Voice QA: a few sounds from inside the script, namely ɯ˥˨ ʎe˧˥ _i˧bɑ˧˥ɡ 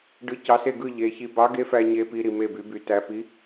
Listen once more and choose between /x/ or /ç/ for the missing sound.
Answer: ç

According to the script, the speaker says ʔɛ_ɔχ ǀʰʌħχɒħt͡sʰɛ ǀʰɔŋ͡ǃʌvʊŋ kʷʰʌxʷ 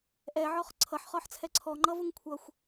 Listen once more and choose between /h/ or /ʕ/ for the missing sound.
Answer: ʕ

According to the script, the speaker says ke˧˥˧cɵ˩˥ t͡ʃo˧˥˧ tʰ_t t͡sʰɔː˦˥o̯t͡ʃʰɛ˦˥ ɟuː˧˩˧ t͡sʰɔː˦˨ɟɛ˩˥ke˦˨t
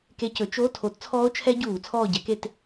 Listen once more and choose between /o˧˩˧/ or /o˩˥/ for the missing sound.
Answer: o˩˥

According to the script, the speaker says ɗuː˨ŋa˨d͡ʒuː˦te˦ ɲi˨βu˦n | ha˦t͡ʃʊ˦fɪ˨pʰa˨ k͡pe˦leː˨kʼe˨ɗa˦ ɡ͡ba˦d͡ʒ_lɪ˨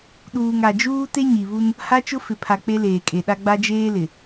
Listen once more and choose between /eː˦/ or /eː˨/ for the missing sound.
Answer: eː˦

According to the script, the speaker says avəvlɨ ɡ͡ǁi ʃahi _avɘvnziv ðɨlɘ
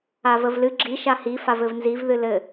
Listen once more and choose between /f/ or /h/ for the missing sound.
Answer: f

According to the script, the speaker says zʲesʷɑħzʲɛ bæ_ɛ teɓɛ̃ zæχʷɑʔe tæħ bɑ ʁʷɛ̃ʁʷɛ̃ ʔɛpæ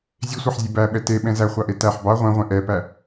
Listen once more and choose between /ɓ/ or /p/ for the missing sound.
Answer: ɓ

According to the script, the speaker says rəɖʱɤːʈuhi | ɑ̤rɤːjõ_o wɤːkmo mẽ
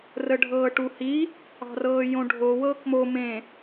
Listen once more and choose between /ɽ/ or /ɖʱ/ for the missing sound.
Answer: ɖʱ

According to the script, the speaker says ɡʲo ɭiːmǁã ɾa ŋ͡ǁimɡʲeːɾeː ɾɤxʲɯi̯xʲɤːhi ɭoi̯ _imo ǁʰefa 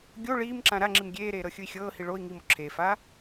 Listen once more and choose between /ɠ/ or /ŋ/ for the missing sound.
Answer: ŋ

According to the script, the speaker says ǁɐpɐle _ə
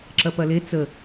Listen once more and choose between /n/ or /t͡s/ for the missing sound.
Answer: t͡s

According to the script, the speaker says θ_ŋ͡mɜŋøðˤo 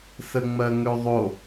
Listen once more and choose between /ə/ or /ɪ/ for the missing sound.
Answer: ə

